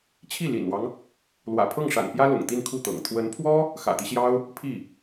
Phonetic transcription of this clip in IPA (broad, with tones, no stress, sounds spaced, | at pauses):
t͡ɕʰ i˥˩ l ḭ˨˩ n w ɑ˦ ŋ | l w ä̰˨˩ pʰ ɤ˥˩ ŋ ʂ a̰˨˩ n p j ä˥ l ʊ̰˨˩ ŋ t̪ i˥˧ n kʰ u˥˩ t̪ ɤ̰˨˩ ŋ t̪ʰ w ə˧˥ n pʰ w ɔ˥ | x ä̰˨˩ t̪ i˦ ɕ j ɑ˥ ʊ̯ | pʰ i˥˩